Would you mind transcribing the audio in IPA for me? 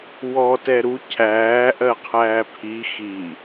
wɔ tɛɾu cʰæː ʔɜqʰæːpʰi xi

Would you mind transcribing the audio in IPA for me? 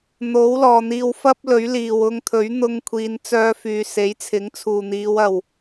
n̪o˨˥wlɔː˨n̪iː˧w fɐ˥p̚lɵ˨˥ɥliː˨w ʊ˧ŋt̪ʰɵ˨˥ɥ n̪ʊ˧ŋkʷʰiː˨˧nt͡sœː˧fyː˨ se˨˥jt͡sʰɪ˨˥ŋt͡sʰuː˨n̪iː˨˧w ɐ˨w

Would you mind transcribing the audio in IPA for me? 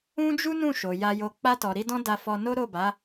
ũ˦d͡ʒu˦nũ˦˨ʃo˨ ja˧jo˧ k͡pa˧tɔ˨ɾi˧ dɔ̃˦da˧fɔ˧no˦ ɾo˦˨ba˨˦

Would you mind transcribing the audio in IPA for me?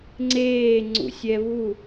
ŋ͡ǀeː ŋ͡ǀṵsʲɛβu

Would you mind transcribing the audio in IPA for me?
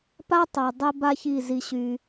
pa˥tˤa˨ dˤɛ˥ba˥çi˦˨ zi˨ɕy˨

